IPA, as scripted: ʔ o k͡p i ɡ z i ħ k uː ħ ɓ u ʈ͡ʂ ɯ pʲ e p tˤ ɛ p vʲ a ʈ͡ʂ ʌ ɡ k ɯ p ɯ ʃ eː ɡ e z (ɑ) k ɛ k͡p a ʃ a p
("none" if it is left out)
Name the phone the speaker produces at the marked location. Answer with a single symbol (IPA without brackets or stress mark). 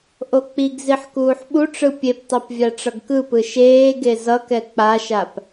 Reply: ʌ